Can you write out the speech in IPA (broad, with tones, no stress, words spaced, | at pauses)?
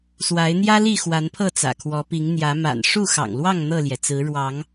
swa˨˦ɪ̯n̪jä˦li˥˨ xwa˨˦npʰɤ˥˨t͡sä̰˨˩ kʰwɔ˨˦pi˨˦ŋ n̪jä˨˦ma̰˨˩n ʂu˥˨xɑ̰˨˩ŋlwɑ˥˨ŋ n̪ɤ˥˨ljɛ˩t͡sɹ̩˨˦ ɻwɑ˨˦ŋ